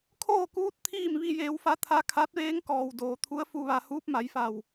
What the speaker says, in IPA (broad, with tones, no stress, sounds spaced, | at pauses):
kʰ oː˥˨ k uː˧˥ t̚ t̪ʰ iː˥˨ m ʋ i˧ j eː˩˧ w f a˧˥ t̪ʰ a˧ kʰ a˧˥ t̚ ʋ eː˧˥ ŋ k ɔː˩ w d oː˩ t̪ʰ u˧˥ ə̯ f u˧ ʋ a˧ h uː˧˥ p̚ m a˩˧ j f a˧˩ w